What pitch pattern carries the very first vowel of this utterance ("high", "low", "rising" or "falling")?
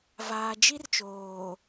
low